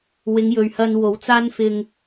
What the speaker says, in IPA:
wɪ˨˧ŋjɵ˨ɥ hɐ˨n wo˨˥wt͡saː˥nfɪ˧ŋ

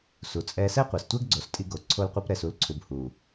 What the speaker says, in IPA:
su˨t͡sʼɛ˧ sɛ˦qʷɛ˨stʷɛ˦ɡɡ͡ǀo˨s tʼi˧ɡo˨ ǀʰo˦lqʷi˦pɾɛ˧s u˨˦lǀʰu˨bhu˨

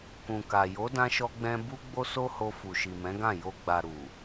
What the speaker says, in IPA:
kũ˨ka˨ jo˨˦dã˧ʃɔ˧ɡ͡bɛ̃˧ bu˦ ɡ͡bo˦so˦ho˧fu˨ ʃi˨mɛ̃˨˦ɡã˦˨ jo˧ ɡ͡ba˨ ɾu˨

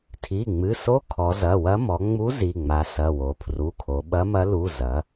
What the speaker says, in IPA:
tʰi˩˧˩ŋ͡mɨ˩˧˩so˧˥ kʰɔ˩˧zɐ˩˧˩wɐ˧˥ mɔ˩˧ ŋ͡mu˧˥ zi˩˧˩ŋ͡ma˩˧sɐ˩˧˩ wo˩˧ pʰru˩˧˩kʰo˩˧ɓɐ˧˥mɐ˧˥ lu˩˧˩ zɐ˩˧

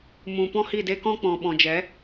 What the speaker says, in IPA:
mũ˨pɔ̃˦hi˦˨de˦ kɔ̃˦k͡pɔ̃˨ ɓɔ̃˨d͡ʒɛ˨˦

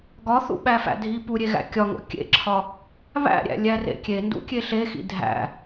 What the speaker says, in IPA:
ɡɒθṵɓæfæ̰ dʱi puɾʲeɣæ̰ kʲɒŋo̰ kʲḛǁʰɒ | βæ̰ɾʲæ̰lʲærḛ kʲendṵkʲe ɬexḭ dʱæ̰

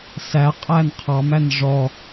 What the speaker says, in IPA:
sæ qʼænqʰɑmæn ʐɔ

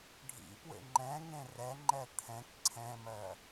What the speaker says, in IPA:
ɖʱḭpwḛ ŋ͡ǃɛ̃ŋẽ rɛŋ͡ǃɛ t̪ʰɛ̃k ǀʰɛ̃mɜ

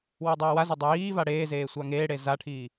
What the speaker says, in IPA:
wodˤɛːwazo dˤujiːva ɽeːzeː sʷaŋeːɽe zaʈʰiː

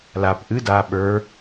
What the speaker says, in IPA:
lap ʔɨ da ɓə˞

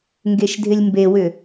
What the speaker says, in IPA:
ŋɡeʃdʱɪlʲmbewʏ

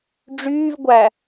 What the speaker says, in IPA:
ɖ͡ʐyːv ɡʷæ

